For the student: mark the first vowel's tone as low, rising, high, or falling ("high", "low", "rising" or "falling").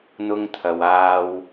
high